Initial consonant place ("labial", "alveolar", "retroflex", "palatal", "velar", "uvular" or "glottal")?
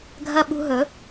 velar